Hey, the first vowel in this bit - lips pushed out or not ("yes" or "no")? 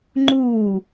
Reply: yes